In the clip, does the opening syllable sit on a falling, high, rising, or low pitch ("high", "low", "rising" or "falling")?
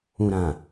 low